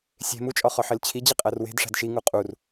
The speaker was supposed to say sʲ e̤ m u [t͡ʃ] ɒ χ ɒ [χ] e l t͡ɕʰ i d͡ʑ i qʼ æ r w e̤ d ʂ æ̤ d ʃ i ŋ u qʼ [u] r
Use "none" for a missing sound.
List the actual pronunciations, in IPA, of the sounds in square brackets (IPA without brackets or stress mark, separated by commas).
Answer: t͡ʃʼ, ħ, u